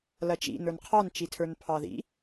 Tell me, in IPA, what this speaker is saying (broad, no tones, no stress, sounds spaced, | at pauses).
l ɐ t͡ʃ ḭ n ə˞ n qʰ ɑ n t͡ʃ i tʰ ə˞ n pʰ ɑ ð ḭ